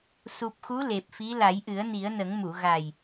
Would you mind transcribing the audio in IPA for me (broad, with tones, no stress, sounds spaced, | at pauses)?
s u˨˩ p̚ x u˧˥ l e˨˩ p̚ f i˧˥ l a˨˩˦ j ʔ ɨ˨˩˦ ə̯ n i˨˩˦ ə̯ n ə˨˩˦ ŋ m u˨˩˨ ɣ a˨˩ j